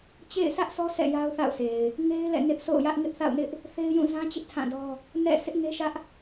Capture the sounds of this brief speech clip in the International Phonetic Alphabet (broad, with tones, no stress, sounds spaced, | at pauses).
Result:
t͡ɕ ḛ˦˨ ɪ̯ sʰ ä˦ ʔ s ɔ˦ sʰ ɛ̰˦˨ j a˦ ʊ̯ θ a̰˦˨ ʊ̯ s e˨ ɪ̯ | ŋ e˦ ɪ̯ l ɛ̰˦˨ n ɪ˦ ʔ sʰ o̰˦˨ ʊ̯ j ä˦ ʔ ŋ ɪ˦ ʔ θ a̰˦˨ ʊ̯ n ɪ˦ ʔ | θ e˦ ɪ̯ j ũ˦˨ z ã˦ t͡ɕ ɪ˦ ʔ tʰ ã˦˨ d ɔ˦ | n ɛ̰˦˨ sʰ ɪ˦ ʔ ŋ e˦ ʃ ä˦ ʔ